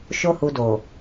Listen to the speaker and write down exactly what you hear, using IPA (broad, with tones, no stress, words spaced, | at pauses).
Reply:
ʃo˦hu˧ do˨